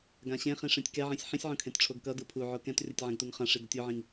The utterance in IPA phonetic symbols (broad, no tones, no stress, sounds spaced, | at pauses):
ɡ ã ɕ ẽ χ ĩ ʂ ẽ tʲ k ɛ ʕ ĩ sʲ ħ ĩ sʲ ʕ õ kʰ ẽ t ʈ͡ʂʰ o ɡ k ʌ d ɯ pʰ u ʕ o k ɛ̃ t rʲ ʌ tʲ ʕ ɛ̃ ɡ t u ŋ χ ã ʂ i d ʌ tʲ o ʕ ĩ ŋ